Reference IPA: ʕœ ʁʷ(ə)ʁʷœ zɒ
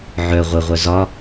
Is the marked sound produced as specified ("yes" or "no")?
yes